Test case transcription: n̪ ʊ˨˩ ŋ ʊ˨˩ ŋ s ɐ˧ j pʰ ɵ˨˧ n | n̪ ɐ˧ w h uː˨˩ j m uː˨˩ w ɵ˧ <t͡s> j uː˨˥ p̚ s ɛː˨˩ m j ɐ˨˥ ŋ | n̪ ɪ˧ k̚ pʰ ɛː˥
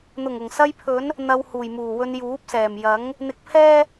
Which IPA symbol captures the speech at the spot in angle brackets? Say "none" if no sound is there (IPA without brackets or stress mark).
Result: n